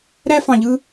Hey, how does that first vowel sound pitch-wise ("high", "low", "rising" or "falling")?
high